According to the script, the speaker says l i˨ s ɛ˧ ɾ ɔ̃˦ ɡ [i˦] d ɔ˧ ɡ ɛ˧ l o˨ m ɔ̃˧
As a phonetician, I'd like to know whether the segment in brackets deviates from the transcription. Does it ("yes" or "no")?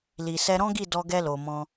yes